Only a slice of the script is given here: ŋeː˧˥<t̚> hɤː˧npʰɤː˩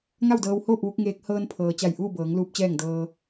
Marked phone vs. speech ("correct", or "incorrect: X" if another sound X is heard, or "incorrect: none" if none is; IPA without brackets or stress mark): incorrect: k̚